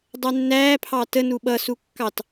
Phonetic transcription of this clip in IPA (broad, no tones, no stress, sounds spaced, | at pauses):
dˤ ɛ nː æː pʰ ɑ t ə n u ɓ ʌ s u kː ɑ t